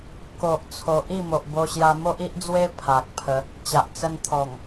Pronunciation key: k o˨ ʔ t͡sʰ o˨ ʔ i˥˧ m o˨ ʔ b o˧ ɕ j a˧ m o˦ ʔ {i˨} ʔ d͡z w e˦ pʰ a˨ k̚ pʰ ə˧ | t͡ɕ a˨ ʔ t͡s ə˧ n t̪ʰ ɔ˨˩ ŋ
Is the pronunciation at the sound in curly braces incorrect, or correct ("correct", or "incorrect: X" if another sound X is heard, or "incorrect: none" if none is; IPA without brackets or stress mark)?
incorrect: i˦